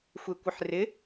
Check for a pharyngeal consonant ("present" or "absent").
present